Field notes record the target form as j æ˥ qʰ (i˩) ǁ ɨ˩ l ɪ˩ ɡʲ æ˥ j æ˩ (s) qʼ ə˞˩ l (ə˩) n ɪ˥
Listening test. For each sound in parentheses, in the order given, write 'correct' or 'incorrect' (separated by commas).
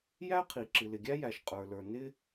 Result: correct, incorrect, incorrect